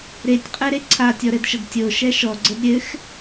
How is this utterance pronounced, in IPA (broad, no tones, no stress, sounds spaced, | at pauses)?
ɾ e tʲ qʼ ɛ ɾ e ǀʰ a tʲ ɔ ɾ ɘ d ʃ ə d tʲ o ʃ ɛ ʃ ɔ ɡ͡ǀ ə d ɾʲ ɘ x